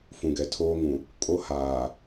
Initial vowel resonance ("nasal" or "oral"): nasal